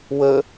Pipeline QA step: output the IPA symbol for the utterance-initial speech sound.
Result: w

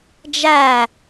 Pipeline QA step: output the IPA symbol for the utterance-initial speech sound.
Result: d͡ʒ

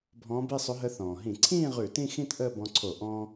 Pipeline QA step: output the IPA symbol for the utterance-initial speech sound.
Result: bʱ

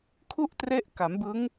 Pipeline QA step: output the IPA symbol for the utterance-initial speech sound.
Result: kʰ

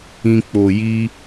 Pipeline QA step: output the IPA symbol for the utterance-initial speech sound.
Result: ĩ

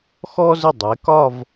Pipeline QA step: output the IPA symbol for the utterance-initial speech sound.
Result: x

